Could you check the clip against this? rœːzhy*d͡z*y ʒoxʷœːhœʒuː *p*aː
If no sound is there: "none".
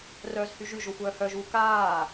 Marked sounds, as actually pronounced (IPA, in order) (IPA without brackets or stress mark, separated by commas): ʒ, k